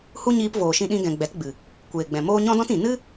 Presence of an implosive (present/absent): present